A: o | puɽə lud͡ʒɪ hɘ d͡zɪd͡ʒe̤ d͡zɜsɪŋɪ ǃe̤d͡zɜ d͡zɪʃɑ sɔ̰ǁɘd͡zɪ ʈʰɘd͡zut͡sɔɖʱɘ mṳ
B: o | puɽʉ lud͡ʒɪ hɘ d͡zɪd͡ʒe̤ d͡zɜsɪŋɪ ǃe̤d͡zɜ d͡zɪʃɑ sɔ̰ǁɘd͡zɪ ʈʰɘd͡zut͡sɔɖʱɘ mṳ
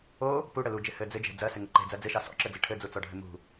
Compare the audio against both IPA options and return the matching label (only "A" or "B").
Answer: A